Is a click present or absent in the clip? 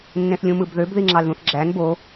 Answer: present